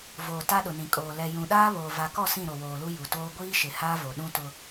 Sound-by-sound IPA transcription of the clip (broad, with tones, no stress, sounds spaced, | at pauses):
v oː˨ t a˦ ɗ ʊ˨ n ĩ˨ kʼ oː˨ l ɛ˨ j ũ˨ ɗ aː˦ β oː˨ v a˨ k ɔ˦˨ s ĩ˦˨ ɾ o˨ w oː˨ l u˦ j u˨ t oː˦ ɡʷ iː˦ ʃ ɪ˨ h aː˦ v o˨ ɗ ũ˦ t ʊ˦